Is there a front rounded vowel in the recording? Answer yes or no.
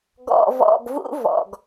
no